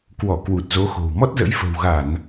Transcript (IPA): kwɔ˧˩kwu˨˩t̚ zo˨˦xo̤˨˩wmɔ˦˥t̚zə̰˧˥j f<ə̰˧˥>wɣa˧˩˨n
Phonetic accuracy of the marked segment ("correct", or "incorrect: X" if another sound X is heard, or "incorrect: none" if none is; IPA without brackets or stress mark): incorrect: ə̤˨˩